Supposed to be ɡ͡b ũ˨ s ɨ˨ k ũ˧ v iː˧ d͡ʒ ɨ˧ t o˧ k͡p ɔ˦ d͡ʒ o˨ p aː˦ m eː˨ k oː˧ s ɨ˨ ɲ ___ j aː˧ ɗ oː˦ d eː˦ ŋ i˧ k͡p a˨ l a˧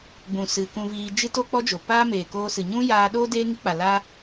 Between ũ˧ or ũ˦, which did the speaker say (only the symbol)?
ũ˦